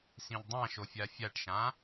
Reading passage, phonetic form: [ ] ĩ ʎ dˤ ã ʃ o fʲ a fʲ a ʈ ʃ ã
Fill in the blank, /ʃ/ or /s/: s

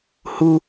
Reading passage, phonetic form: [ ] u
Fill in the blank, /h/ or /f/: h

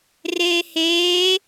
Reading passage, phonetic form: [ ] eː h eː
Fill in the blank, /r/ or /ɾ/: r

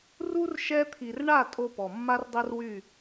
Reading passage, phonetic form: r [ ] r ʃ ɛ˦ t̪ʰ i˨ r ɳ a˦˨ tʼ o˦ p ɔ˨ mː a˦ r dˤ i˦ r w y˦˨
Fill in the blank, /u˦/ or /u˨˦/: u˦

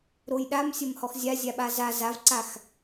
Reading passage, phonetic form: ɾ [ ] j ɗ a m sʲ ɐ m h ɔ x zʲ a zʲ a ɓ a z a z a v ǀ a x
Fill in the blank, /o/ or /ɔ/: o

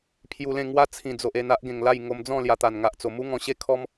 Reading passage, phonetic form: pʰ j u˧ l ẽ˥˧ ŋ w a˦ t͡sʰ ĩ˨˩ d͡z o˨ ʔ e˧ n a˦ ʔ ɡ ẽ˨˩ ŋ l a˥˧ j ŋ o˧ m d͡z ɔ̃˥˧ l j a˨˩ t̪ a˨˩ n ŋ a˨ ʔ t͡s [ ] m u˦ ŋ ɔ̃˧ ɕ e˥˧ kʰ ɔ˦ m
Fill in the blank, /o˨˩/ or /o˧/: o˨˩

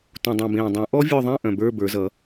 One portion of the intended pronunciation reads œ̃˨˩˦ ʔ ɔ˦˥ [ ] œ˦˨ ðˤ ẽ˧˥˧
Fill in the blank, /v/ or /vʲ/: vʲ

